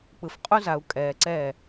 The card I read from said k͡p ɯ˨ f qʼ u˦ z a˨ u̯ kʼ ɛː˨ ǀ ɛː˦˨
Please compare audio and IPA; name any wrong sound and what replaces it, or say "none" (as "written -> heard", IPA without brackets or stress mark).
none